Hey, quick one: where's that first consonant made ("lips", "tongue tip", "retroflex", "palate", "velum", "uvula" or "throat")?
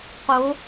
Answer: uvula